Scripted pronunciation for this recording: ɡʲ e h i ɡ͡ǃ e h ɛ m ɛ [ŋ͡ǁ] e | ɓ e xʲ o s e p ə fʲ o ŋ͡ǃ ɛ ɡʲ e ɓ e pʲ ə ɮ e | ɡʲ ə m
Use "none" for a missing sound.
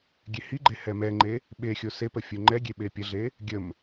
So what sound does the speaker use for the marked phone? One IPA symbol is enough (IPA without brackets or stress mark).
ŋ͡ǃ